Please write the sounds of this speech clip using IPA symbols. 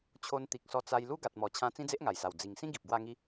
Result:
t͡ɕʰ o˧ n t̪ i˨ k̚ s ɔ˧ t͡s a˧ j l u˦ ɡ a˨ t̚ m ɔ˨˩ t͡ɕʰ ã˧ t͡s ĩ˦ d͡z e˦ ʔ ŋ a˨˩ j s a˨˩ w d͡z i˨˩ ŋ s ĩ˦ ɡ i˨ p̚ ɡ w a˥˧ ŋ i˦

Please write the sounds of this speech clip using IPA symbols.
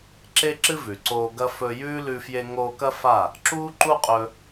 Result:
ǁ e˦ ǁ ɨ˦ v ʉ˨ ǀ oː˧ ɡ ɐ˦ f ɵ˧ j ʉː˦ l ʉ˧ f j e˧ ŋ oː˧ k ɐ˦ f a˦˨ | ǁ uː˦ ǃ u˦ qʼ ɵ˧

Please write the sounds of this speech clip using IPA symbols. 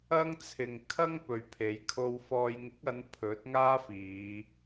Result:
ɐ˥ ŋ t͡sʰ ɪ˨ ŋ kʰ ɐ˥ ŋ p ɵ˨ ɥ pʰ e˨˧ j kʰ o˧ w f ɔː˧ j ŋ ɪ˨˥ k̚ ɐ˨˧ n pʰ ɵ˨˥ t̚ ŋ aː˥ f iː˨˧

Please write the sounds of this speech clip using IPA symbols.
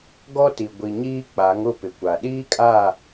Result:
ɡ ɔ˦ t i˨ ɡʷ i˨ ɲ iː˦ k͡p a˨˦ ŋ ʊ˦˨ p ɪ˨ kʷ a˨ ɗ iː˦ kʼ a˦˨

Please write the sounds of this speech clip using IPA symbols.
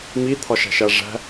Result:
m i t̪ʰ ɒ ʃ æ̤ ʃ æ ʐ æ̤

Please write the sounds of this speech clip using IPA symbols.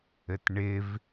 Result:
ɘ t ɳ ɪ v

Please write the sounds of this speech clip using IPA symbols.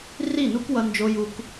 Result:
r i˦˨ n u˦ k w ʌ˨ n d͡ʒ o˨ j u˦ k

